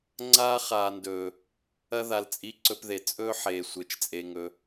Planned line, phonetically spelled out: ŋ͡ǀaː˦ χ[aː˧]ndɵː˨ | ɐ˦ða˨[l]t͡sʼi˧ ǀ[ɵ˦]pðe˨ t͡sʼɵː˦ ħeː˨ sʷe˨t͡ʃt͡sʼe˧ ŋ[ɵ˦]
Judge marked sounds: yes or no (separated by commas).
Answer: no, yes, yes, no